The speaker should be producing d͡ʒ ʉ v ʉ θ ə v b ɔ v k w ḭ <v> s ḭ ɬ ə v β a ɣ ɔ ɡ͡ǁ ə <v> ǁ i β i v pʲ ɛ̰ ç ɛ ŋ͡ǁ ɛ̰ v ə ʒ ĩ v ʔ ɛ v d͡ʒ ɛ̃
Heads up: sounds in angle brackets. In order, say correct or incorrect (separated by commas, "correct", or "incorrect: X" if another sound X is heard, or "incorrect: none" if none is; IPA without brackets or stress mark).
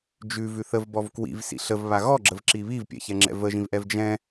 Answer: correct, correct